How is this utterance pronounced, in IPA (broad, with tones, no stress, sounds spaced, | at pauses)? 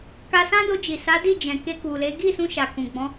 k a˧ s ã˦ d o˧ d͡ʒ i˨ s a˨˦ d i˦˨ d͡ʒ ɛ̃˨ k e˧ k u˨ l e˨˦ ɡ i˦˨ s ũ˧ ʃ a˨ k ũ˨ ɡ͡b ɔ̃˨˦